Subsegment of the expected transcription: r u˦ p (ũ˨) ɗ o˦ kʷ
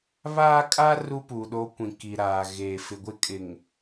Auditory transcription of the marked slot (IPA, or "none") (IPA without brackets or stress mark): u˨